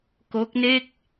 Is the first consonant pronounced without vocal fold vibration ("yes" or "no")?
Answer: yes